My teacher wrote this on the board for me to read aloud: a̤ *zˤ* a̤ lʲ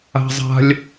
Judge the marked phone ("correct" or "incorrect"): correct